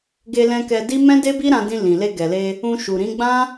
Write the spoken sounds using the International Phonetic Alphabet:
ɡ e˧ l ɛ̃˧ k ɛ˧ d i˦ m ɛ̃˦ d e˦ b i˦ ɾ ã˧ d ĩ˧ l ĩ˨ l e˧ ɡ ɛ˨ l e˧ | ũ˧ ʃ u˨ ɾ ĩ˨˦ ɡ͡b ã˦

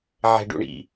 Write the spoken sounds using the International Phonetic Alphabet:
ʕ ɛ̤ ɖ ṵ ɳ ḭ

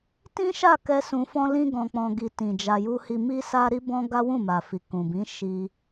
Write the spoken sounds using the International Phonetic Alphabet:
t ĩ˦ ʃ a˦˨ k ɛ˧ s ũ˧ f ɔ̃˦ l ĩ˦ ɡ ɔ̃˧ k͡p ɔ̃˧ ɡ i˧ t ĩ˨ d͡ʒ a˨ j u˧ h i˧ m i˦ s a˦ ɾ i˦ b ɔ̃˦ ɡ a˦ w ũ˦˨ m a˨ f i˨ k ũ˨ b ĩ˨˦ ʃ i˧

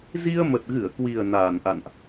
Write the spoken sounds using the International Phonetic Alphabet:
z i˧ ə̯ m ə˨˩ t̚ ɣ ɨ˧˩ ə̯ k w i˨˩ ə̯ n aː˧˩ n ʔ a̰˧˨ n ʔ

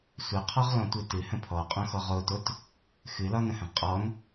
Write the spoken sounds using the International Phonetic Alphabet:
sʷ ɘ qʰ ɔ ʁ l ɔ̃ tʷ ɨ t ɨ h ə̃ pʰ ɔ qʼ õ x ɔ ʁ o t o t | x ɨ l ɒ n ə̃ h ə̃ ʁ qʼ ɔ n

